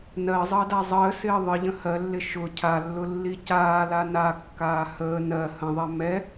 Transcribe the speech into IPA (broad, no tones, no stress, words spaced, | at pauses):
nɜzˤəːda zˤəːsɪː ðˤəʎə̃ hɜlːɪ ʃʊ cʰalːʊlːi caːla nakːaː həː nɜ hə̃ðˤɛ mɛ